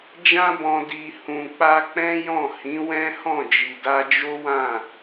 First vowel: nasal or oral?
nasal